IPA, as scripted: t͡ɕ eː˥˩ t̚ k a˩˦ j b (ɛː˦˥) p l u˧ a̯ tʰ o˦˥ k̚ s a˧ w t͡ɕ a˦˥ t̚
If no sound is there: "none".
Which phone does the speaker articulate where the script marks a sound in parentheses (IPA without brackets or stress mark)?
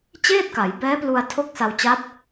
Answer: ɛː˦˥